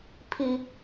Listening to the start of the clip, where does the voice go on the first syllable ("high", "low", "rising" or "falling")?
high